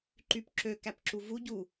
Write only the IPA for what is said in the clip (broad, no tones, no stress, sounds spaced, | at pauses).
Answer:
ǃ y p ǁ ø k æ p ǁ u v u ɟ u